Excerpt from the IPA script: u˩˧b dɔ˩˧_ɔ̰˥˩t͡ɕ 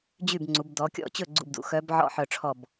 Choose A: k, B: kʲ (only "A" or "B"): B